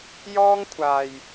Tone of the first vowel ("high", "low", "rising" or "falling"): high